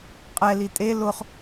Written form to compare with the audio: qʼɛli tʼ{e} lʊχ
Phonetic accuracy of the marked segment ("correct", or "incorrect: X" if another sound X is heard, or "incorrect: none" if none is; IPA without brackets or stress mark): correct